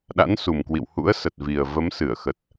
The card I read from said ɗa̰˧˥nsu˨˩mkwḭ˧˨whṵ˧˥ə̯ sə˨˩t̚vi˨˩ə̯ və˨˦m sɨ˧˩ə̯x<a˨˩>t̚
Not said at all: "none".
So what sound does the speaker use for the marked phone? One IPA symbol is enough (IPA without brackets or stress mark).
ə˨˩